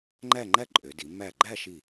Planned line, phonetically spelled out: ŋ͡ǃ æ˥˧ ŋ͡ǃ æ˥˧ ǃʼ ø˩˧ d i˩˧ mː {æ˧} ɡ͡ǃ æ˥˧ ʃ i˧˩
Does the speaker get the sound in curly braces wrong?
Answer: yes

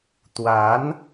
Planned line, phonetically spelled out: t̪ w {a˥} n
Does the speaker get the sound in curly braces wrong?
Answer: yes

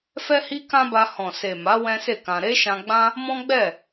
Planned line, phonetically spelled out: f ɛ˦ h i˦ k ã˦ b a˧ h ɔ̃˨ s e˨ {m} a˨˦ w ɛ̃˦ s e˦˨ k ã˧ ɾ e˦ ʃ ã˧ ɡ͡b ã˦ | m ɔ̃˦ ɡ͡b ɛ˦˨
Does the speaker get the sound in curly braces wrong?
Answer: no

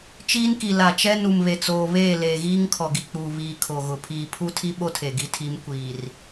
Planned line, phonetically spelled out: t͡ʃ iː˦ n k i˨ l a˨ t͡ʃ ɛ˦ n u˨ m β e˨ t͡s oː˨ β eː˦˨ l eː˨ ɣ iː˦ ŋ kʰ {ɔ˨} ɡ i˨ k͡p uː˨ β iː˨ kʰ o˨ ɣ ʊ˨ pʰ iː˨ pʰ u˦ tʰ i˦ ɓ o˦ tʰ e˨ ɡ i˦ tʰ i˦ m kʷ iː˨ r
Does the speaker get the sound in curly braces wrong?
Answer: no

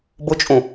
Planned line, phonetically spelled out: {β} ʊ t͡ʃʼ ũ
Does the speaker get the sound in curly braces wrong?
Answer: yes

